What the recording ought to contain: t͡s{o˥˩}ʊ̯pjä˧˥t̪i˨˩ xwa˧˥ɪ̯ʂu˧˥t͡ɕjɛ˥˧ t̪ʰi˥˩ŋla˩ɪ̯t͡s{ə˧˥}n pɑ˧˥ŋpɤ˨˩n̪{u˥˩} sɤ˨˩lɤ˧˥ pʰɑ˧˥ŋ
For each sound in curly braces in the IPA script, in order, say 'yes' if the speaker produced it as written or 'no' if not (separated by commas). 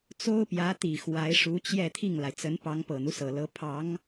no, yes, no